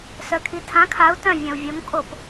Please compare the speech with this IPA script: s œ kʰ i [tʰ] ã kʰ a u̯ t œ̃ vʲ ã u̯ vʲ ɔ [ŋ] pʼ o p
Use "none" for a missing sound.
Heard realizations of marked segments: tʰ, ŋ

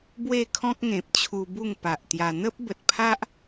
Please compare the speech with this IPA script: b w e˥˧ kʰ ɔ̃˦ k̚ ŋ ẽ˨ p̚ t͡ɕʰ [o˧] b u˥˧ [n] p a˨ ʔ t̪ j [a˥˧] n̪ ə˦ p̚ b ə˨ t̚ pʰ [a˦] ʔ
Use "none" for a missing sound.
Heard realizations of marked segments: u˧, ŋ, a˧, a˦

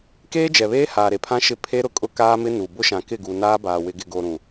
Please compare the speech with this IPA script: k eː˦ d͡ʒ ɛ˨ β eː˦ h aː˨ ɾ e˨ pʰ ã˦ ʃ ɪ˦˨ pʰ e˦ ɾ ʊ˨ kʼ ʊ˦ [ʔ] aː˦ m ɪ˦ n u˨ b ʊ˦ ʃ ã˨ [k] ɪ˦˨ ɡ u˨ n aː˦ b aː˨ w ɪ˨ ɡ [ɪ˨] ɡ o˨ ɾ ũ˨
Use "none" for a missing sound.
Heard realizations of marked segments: k, k, ɪ˨

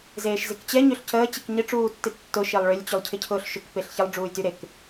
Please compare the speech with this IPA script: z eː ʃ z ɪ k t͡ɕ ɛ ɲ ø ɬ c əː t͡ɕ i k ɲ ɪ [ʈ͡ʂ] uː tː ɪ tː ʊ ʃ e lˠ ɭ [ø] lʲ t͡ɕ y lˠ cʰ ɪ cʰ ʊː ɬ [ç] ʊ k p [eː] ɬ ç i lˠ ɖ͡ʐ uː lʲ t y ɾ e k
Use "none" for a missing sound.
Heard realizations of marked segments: ʈ͡ʂ, ø, ʃ, e

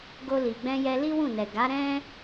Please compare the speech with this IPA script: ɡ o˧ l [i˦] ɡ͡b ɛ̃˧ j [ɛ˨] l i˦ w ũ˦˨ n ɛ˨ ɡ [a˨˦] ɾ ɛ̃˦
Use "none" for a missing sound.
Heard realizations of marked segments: i˨, ɛ˧, a˨˦

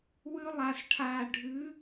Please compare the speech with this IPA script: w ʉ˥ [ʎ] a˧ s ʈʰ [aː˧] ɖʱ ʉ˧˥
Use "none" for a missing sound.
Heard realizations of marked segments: lˠ, aː˧

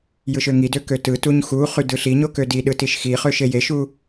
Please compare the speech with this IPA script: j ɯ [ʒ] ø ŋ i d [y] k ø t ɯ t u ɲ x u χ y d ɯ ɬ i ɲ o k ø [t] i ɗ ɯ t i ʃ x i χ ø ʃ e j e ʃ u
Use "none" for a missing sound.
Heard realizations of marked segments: ʃ, ø, d

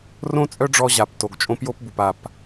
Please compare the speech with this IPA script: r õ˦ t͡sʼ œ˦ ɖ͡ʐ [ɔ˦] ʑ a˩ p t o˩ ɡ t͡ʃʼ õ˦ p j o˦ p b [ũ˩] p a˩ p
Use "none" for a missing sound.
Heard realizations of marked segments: ɔ˦, u˩

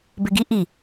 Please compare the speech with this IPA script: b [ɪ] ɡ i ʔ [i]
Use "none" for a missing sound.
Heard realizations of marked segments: ɪ, i

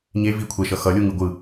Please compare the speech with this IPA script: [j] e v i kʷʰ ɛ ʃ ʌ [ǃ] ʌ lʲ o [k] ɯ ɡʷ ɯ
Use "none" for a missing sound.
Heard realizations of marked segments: ɲ, x, ŋ

